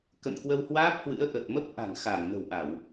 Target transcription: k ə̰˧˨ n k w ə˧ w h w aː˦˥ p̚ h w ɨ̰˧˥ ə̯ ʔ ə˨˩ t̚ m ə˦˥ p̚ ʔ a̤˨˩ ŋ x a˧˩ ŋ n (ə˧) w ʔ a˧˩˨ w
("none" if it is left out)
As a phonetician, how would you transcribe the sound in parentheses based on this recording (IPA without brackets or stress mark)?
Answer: ə̤˨˩